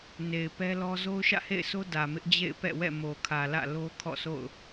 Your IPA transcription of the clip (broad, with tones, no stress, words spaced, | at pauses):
ne˨ɪ̯pɛ˦lɔ˦ zo˦ʊ̯ʃä̰˦˨hḛ˦˨ɪ̯sʰo˦ dä˨mɪ˦ʔ d͡ʑḛ˦˨ɪ̯pɛ̰˦˨wɛ̰˦˨ mo˨kʰä˨lä̰˦˨ lo˦ kʰɔ̰˦˨so̰˦˨ʊ̯